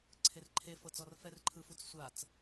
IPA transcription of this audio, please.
ǀʰ e r ǃʰ e f ɤ t͡s ɔ r f ɛ r ǃʰ ɯ f u t͡s sʷ a t͡s

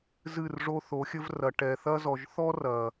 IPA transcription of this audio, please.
z ɨ˦˨ r ʐ o˦ θ o˨˦ xʲ ɘ˦ v r ɐ˨ ʈ ɛ˨ θ ɐ˦ z ɔ˨ ʒ θ ɔ˦ r ɐ˨

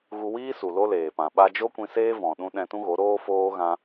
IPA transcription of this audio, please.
ɣ u˧ w iː˦ s u˨ l o˧ l eː˨ p ã˨ ɓ a˧ d͡ʒ o˦ kʷ ĩ˧ s eː˦ v ɔ̃˨ ɗ ũ˧ ɗ ɛ̃˧ t ũ˦ ɣ o˨˦ ɾ oː˦ f oː˦ ɣ ã˦

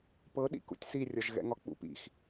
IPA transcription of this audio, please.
p ɤ ɗ ḭ k ṵ tʲ s i rʲ ɒ ʒ ɣ ɛ̰ ŋ ɒ k͡p ṵ p ḭ x

